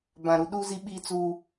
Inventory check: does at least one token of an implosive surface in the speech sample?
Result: yes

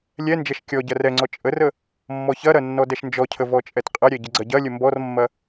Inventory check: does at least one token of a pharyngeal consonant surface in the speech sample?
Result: no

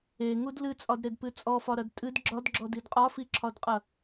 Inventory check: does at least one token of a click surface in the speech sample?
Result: yes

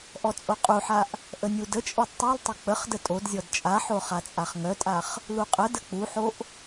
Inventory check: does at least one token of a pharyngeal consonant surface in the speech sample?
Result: yes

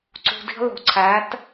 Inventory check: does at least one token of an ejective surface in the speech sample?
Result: no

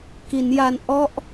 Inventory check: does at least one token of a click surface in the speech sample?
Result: no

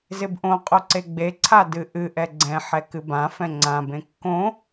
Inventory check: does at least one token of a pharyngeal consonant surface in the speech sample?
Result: yes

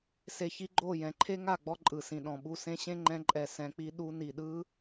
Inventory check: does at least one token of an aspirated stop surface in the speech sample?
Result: yes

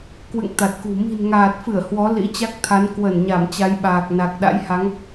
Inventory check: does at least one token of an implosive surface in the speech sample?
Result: yes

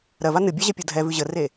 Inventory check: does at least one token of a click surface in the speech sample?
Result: no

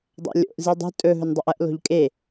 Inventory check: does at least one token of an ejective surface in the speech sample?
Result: yes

